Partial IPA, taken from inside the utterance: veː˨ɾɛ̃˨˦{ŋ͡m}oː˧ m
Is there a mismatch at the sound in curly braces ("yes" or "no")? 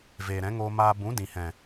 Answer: yes